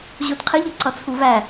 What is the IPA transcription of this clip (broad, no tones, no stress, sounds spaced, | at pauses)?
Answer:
ʑ u d qʰ i ʎ ʌ ǀ ʌ t͡sʰ u v æ